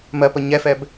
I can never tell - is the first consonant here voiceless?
no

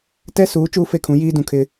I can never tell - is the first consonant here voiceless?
yes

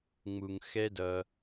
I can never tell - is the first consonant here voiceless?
no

